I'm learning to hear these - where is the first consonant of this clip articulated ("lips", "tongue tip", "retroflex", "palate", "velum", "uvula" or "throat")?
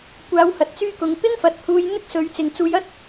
velum